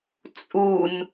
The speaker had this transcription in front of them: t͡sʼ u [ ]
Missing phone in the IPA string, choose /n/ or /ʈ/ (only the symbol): n